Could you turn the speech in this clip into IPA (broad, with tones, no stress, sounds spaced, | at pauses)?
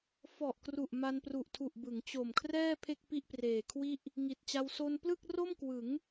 f ɔ˨˩ ʔ k r u˨˩ ʔ m a˧ n p r u˨˩ ʔ tʰ u˨˩ ʔ b ɯ˩˦ ŋ t͡ɕ o˨˩ m kʰ r ɛː˥˩ pʰ e˥˩ k̚ p i˥˩ ʔ p r eː˨˩ kʰ w i˥˩ ʔ | ŋ i˨˩ t̚ t͡ɕ a˧ w s o˧ n p l ɯ˥˩ k̚ r o˥˩ m k w ɯ˩˦ ŋ